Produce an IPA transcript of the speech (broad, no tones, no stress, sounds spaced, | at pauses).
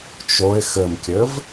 t͡ʃ o ɪ̯ x ɘ m kʲ ɘ v